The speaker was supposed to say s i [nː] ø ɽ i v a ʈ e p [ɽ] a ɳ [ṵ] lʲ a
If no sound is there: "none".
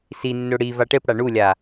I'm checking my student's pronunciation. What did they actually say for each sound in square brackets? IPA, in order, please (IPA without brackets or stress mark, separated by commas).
nː, ɽ, u